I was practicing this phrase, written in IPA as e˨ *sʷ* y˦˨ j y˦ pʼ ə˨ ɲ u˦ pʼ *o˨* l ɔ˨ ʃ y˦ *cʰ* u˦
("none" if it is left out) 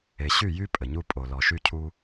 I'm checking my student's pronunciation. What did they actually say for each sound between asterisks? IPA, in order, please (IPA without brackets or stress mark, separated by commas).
ɕ, o˨, cʰ